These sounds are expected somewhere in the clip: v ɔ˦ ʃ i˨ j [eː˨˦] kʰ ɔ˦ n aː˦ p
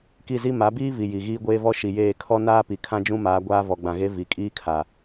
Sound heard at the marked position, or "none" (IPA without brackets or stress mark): eː˦˨